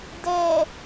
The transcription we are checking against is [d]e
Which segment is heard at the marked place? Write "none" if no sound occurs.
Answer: d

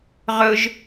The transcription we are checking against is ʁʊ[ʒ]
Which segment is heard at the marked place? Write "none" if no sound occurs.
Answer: ʒ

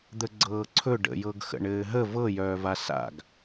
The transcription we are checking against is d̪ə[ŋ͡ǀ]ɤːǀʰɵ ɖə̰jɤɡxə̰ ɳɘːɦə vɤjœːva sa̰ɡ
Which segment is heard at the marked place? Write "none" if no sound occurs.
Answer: ɡ͡ǀ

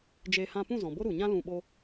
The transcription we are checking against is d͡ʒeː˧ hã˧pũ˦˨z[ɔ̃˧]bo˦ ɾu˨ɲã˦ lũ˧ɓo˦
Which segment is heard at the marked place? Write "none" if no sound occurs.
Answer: ɔ̃˨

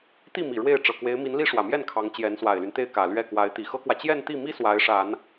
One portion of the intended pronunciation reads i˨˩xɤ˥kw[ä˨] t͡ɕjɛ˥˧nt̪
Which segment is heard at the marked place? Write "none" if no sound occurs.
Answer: ä˨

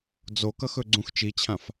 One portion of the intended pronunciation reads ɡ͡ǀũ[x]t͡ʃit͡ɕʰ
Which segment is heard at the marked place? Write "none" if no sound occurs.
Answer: x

